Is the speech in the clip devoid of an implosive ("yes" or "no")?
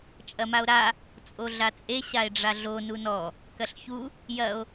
yes